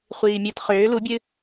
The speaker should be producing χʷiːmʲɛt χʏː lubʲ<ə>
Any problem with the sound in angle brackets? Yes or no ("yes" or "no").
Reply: yes